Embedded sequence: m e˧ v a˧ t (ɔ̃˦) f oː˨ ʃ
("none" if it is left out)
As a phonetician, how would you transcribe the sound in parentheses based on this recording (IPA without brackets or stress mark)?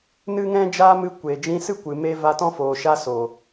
ɔ̃˦